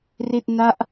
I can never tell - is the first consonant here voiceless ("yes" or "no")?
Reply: no